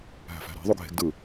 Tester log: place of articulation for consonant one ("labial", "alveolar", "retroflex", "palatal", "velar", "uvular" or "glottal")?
glottal